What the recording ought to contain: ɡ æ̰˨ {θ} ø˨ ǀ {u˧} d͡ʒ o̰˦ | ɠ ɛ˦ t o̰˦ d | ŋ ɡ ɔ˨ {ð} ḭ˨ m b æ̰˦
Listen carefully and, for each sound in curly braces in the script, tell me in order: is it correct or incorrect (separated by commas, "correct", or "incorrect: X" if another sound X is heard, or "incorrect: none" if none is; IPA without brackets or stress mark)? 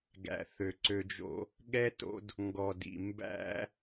correct, incorrect: ø˧, incorrect: d